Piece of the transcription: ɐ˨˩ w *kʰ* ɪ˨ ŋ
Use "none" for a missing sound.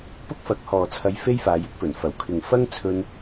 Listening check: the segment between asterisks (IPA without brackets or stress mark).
kʰ